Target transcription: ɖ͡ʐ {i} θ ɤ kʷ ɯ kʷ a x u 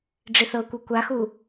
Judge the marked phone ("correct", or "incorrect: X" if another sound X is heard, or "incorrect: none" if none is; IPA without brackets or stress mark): correct